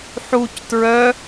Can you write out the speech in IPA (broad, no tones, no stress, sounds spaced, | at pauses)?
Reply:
ħ u c t ɹ œ